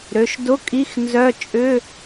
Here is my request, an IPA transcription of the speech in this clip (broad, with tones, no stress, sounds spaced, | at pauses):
ɾ ø˩˧˩ ʃ d ʊ˧˥˧ kʼ i˧˥˧ x n z œ˧˥˧ t͡ʃʼ ʏ˧˥˧